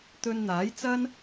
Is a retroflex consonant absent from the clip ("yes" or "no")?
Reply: yes